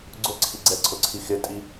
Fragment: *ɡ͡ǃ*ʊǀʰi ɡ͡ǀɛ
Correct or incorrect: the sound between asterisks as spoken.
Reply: incorrect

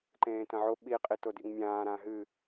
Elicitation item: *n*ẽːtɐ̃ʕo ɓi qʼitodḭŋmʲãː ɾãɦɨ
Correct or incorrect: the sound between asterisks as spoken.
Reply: incorrect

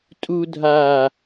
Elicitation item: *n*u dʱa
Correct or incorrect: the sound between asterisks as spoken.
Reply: incorrect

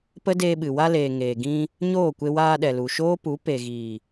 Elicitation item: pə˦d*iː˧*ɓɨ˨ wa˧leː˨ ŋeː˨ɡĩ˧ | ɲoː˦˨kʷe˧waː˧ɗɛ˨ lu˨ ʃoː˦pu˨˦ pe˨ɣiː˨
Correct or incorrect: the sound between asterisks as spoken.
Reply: incorrect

